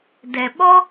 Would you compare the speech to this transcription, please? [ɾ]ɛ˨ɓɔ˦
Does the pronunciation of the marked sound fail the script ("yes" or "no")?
yes